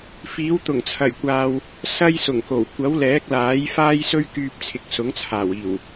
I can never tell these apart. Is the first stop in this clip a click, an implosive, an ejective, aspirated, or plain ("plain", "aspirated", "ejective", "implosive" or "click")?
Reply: plain